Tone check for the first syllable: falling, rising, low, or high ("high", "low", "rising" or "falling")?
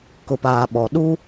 low